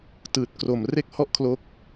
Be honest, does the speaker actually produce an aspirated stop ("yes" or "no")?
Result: yes